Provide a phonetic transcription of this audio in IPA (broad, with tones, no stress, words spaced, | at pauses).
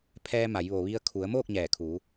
pʰɛː˧ma˩˧j ʋo˩ʋi˧ə̯ kʰu˩˧ə̯moː˥˨k̚ ɲɛː˧˩ kʰu˩˧